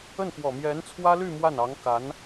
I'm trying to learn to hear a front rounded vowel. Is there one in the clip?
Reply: yes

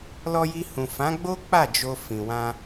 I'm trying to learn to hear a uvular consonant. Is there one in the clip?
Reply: no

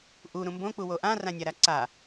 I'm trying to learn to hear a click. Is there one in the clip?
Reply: yes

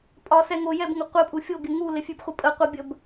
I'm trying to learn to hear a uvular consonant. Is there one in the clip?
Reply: yes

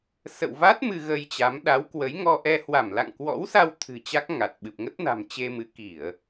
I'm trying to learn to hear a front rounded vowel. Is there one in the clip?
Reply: no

